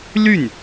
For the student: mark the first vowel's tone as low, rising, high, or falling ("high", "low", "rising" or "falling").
falling